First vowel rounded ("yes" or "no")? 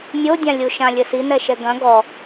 yes